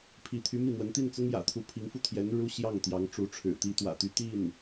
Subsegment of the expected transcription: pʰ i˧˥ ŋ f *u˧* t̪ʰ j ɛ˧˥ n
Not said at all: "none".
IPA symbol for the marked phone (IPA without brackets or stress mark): u˧